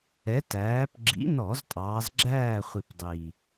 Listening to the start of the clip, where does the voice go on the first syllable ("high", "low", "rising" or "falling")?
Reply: rising